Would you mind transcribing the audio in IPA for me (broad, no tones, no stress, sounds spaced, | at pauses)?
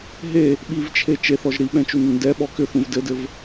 ɦ e | ɓ i v t͡ʃʰ e t͡ʃ e θ ɔ ʒ ɾ i ɓ ɛ̃ t͡ʃ u n ɵ n d ɛ ɓ ɔ k ʏ θ ũ v d ɘ d ɘ v